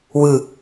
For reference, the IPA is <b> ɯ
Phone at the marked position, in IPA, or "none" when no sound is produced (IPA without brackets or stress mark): w